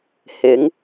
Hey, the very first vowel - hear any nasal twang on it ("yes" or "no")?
no